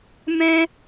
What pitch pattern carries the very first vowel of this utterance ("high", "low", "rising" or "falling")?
high